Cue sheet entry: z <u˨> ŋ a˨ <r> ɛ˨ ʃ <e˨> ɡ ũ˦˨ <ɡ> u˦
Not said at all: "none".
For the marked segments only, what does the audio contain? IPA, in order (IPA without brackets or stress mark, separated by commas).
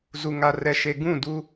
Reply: u˨, r, e˨, d